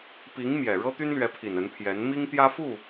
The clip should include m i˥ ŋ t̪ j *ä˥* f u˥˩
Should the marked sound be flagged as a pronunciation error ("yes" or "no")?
no